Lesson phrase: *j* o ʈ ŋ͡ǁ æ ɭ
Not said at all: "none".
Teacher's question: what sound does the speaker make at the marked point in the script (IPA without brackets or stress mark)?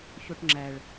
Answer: ç